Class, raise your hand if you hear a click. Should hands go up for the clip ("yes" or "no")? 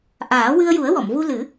no